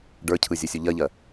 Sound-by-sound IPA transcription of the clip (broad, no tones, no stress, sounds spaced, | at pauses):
ɖ ə˞ cʰ ɯ zʲ o sʲ u ʎ ɜ ʎ ɜ